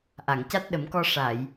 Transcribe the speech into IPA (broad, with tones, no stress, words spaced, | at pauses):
ʔa˨˩˨ŋca˦˥t̚ ɗə˨˩˦mkɔ˧ ʂa˨˩˨j